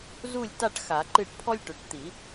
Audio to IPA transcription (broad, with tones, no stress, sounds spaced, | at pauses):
z u˦˨ lʲ t a˦˨ ʈ x a˨˩˦ ǃ ɨ˦˨ ʈ pʰ ɔ˥ lʲ ʈ u˩˧˩ ʈ t̪ i˨˩˦